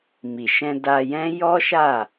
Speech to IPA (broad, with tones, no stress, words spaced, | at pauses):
mi˨ʃɛ̃˧ da˧jɛ̃˦ jɔ˦ʃa˦˨